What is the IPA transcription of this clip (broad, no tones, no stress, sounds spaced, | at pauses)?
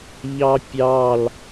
ʎ ɑ pʲ ɑ l